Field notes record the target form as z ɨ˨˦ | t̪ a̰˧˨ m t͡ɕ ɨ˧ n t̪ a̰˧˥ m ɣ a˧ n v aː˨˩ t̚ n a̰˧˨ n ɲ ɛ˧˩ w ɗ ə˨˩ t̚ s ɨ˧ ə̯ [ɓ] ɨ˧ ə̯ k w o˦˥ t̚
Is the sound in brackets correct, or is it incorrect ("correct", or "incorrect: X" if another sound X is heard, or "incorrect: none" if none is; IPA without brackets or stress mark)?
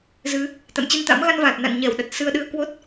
incorrect: ɗ